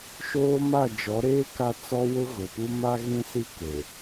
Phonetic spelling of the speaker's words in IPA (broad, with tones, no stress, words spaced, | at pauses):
ʃoː˦ma˦˨ d͡ʒɔ˨˦ɾeː˦ ka˦t͡sɔ˦wʊ˦ ɣʊ˨pu˦ ma˦ɣĩ˦si˦ ke˨